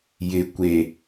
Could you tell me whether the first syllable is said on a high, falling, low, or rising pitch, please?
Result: low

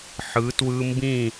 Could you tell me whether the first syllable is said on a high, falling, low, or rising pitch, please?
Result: rising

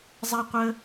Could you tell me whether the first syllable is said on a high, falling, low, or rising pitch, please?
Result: high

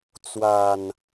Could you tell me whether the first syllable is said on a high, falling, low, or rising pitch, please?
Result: low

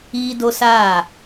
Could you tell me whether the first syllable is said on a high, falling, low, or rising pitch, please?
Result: high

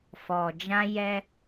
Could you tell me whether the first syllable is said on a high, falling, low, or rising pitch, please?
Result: low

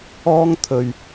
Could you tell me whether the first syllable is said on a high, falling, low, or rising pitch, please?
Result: high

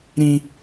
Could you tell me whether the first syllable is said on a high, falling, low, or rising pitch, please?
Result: high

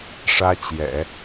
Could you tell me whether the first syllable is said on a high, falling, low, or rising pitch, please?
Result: high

